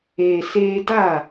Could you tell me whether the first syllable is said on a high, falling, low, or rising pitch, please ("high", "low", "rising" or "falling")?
low